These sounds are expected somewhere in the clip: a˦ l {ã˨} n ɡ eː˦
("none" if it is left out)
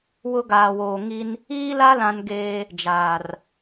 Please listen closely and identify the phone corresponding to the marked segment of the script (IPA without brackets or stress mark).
ã˦